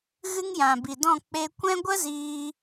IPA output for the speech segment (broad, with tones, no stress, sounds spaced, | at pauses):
ɣ ɨ˦ ŋ j ã˨ b i˨ d ɔ̃˦˨ k͡p e˧ kʷ ɛ̃˦ ɡʷ ə˦ z iː˧